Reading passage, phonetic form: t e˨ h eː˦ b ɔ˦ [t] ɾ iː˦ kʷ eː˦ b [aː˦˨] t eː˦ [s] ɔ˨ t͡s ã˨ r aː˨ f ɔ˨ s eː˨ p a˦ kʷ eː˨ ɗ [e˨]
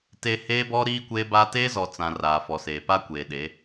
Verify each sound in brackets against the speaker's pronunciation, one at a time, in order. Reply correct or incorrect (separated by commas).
incorrect, incorrect, incorrect, incorrect